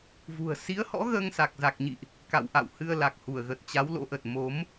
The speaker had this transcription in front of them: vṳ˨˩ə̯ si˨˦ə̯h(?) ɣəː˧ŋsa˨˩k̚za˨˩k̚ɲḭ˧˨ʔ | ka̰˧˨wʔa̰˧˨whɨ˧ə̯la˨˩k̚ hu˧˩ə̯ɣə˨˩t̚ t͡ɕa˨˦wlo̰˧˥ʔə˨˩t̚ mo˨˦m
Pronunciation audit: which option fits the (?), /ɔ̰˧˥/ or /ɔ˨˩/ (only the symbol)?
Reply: ɔ̰˧˥